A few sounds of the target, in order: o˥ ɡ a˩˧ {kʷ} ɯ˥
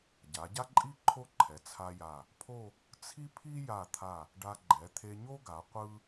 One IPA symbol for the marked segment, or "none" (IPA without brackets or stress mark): qʷ